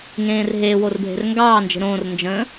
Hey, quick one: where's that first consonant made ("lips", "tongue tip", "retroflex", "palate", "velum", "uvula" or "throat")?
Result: velum